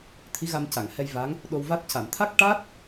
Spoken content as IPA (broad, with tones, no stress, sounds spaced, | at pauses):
t̪ʰ i˧˥ ɣ a˧ m c a˨˩˨ ŋ h ɛ˧ j v a˧˥ ŋ | ɗ o˧ w v a˦˥ t̚ c a˨˩˨ m t̪ʰ a˦˥ k̚ ʈ a˦˥ t̚